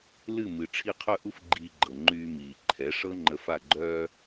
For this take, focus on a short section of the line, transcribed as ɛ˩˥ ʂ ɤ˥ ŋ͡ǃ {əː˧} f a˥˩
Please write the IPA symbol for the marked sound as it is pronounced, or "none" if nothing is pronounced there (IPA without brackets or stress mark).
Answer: ə˧